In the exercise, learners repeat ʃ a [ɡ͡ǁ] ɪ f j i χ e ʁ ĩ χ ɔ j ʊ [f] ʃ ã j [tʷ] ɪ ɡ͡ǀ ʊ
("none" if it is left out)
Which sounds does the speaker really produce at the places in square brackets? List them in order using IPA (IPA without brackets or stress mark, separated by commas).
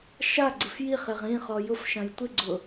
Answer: ɡ͡ǀ, f, tʷ